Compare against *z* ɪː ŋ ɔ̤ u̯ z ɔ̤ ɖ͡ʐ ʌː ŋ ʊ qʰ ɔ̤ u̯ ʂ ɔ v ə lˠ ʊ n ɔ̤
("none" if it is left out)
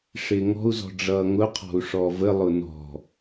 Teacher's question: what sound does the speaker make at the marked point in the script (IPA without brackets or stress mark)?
ʂ